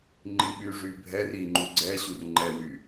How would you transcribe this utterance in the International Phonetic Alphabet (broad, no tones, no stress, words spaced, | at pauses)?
ŋ͡ǃiɓyʐy bʱɛr iŋ͡ǃu ɡ͡ǀɛɕur ŋ͡ǃɛwy